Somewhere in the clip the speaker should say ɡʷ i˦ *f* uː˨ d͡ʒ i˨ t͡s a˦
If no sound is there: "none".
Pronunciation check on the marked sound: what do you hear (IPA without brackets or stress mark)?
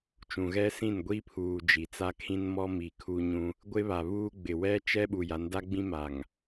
pʰ